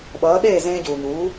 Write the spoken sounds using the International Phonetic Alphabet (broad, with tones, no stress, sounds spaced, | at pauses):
ɓ ʌː˩˥ ɗ eː˥˩ z ẽː˧ ɟ uː˩ ɲ uː˩˥